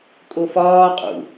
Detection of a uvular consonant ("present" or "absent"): present